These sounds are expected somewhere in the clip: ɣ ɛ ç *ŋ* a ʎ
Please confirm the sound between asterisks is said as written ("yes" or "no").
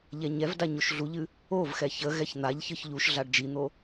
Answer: no